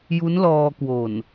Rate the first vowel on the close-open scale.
close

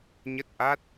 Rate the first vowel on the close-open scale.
mid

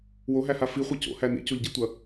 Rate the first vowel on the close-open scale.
mid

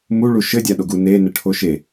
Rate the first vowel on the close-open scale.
close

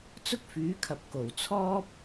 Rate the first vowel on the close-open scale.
close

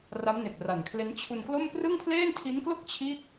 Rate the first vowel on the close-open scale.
open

